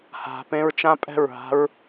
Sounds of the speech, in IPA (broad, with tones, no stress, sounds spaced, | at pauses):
h a̤˧ p ẽ˦ ɹ t͡ʃ ã˦ pʼ ɛ̤˦˨ ɹ ɦ a̤˦ ɹ